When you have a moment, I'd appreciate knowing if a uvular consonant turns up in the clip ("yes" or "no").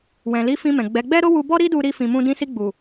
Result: no